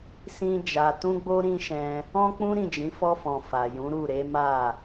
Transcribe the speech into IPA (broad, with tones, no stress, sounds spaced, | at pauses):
s ĩ˦ d͡ʒ a˧ t ũ˦ ɡ͡b o˦ ɾ ĩ˦ ʃ ɛ̃˧ | ɔ̃˦ k͡p ũ˦ ɾ ĩ˦˨ d͡ʒ ĩ˨˦ f ɔ˧ f ɔ̃˨ f a˨ j ũ˨˦ ɾ u˦˨ ɾ e˨˦ m a˦˨